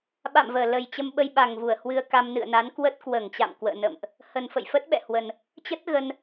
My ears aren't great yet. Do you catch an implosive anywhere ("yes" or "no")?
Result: yes